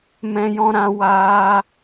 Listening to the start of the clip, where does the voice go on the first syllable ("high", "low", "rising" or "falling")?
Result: high